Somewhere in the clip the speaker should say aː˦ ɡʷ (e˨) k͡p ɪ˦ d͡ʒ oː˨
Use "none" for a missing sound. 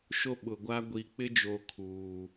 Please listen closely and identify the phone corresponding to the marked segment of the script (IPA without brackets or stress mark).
i˨